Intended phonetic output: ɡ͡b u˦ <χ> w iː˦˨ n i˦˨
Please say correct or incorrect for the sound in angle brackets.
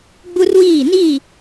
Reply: incorrect